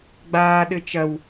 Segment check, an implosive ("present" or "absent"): present